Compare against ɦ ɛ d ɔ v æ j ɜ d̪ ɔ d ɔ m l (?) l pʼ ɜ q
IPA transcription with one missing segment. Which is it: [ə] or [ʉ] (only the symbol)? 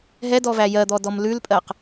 ʉ